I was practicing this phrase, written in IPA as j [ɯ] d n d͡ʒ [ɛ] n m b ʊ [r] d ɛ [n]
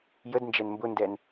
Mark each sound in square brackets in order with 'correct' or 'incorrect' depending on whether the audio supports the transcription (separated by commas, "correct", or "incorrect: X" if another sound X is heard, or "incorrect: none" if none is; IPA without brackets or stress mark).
incorrect: ə, correct, incorrect: n, correct